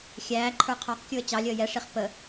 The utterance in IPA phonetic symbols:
xʲ æː ǃʰ ə˞ qʰ ɑ q kʲ u ə̯ t͡ɕ ɑ lʲ əː j ɛ ʂ i χ p ə

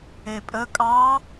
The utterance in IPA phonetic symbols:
e pʼ ə kʼ ɑ

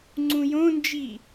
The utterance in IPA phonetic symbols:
ŋ͡ǀ ũ j õ n d͡ʒ i

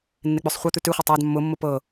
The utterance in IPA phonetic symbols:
nː e k͡p ʉ sˤ χʷ e t̪ ʉ t ʉ χʷ ɤ tˤ a d mː ʊ mː ʊ p ɤ

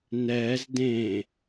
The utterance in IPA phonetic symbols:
n ɛː z d ẽ

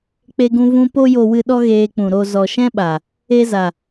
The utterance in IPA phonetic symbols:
k͡p e˧ ɡ ũ˧ v ũ˧ p o˧ j o˨ w ɨ˨ ɗ ɔ˦ ɣ eː˧ k͡p ũ˨ ɾ o˨ z ɔ˨ ʃ ɛ̃˦ ɓ a˨ | e˧ z a˨

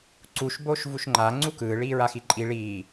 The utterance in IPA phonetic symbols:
ǀ u ʃ b oː ʃ v u ʃ ŋ͡ǃ a ŋ͡ǀ u k ɯː ɭ iː ɹ a x i ǃʼ i ɭ iː

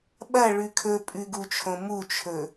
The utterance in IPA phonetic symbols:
ɓ ɐ ɭ ʉ kʰ ɵ pʼ ʉ ɡ u t͡ʃʰ õ m u t͡ʃʰ ɵ

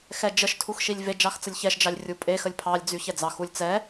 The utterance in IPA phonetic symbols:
x ɛ d͡ʒ ə ʃ tʰ u x ʃ i lʲ v e d͡ʒ ɑ x t͡s ə lʲ ç ɛ ʃ d͡ʒ ɑ lʲ rʲ u pʼ e x ə lʲ pʰ ɑ lʲ d͡z y ç ɛ d͡z ɑ x u lʲ t͡s ɛ

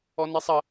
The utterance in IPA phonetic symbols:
ɔ n i sˤ ɐ

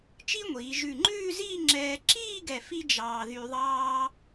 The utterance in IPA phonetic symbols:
t͡ʃ i˥ ŋʷ iː˩˧ ʒ ʉ˧˩ ŋ͡ǃ ʉː˥˧ z iː˥˧ ŋ͡ǁ ɛː˧ ǁ iː˥˧ ɡ ɛ˧˩ f i˥ d͡ʒ ɑː˧ ð y˧ ðˤ ɑː˧

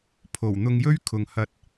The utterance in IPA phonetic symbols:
pʰ o˨˩ w n̪ ʊ˧ ŋ j ɵ˥ ɥ kʰ ʊ˨ ŋ h ɐ˧ t̚

